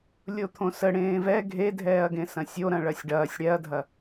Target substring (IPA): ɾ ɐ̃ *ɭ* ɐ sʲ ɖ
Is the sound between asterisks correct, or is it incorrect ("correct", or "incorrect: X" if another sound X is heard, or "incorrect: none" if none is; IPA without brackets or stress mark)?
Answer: correct